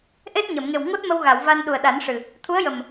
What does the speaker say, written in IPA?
ʔe˦˥t̚ɲə˨˩˨mŋe˨˩w ŋo˦˥t̚mə˧wɣa˨˩˨w va˧n ɗu˨˩ə̯ɗa˨˩˦n ʂɨ˨˩ | t̪ʰu˧˥ə̯jə˨˩m

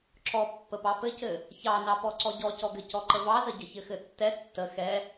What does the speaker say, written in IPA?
ǁɔ pːəpɑpɘcɘ | çɑnɑpɔ ǀɔɟɔcɔɡɘ cɔǃəvɑzə ɟəçɘxɘtːɛ tːə xɛ

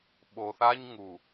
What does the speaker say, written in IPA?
ɓo˨θa˦ɲ ŋu˨

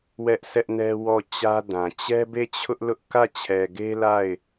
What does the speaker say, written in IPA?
wɛ˦ʔsɛ˦ʔnɛ˦ wɔ˦˨t͡ɕä˦dã˨ t͡ɕɛ˦be˦˨t͡ɕʰʊ˦ʔ lʊ˦ʔ kä˦˨t͡ɕʰɛ˨ɡe˦ la˦˨ɪ̯

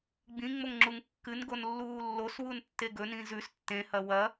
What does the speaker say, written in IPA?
ɡ͡bĩŋ͡moŋŋ͡ǁuŋ kːɨnɡonlːuː lːoswuntːe ɡɵnĩ zʉs tːẽhɐ wɐ

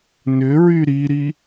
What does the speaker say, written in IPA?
nʏɹy ɾiɾi

